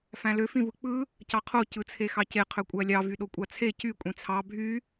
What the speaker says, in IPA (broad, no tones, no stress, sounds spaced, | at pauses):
f æ̃ l ø f ĩ v ɯ k͡p ɯ | c ɑ qʰ o c ɯ t͡sʰ e x ɑ c e qʰ ø kʷʼ æ lʲ ɑ v y ɗ o kʷʼ ɑ t͡sʰ e c y kʷʼ ĩ t͡sʰ ɑ bʱ y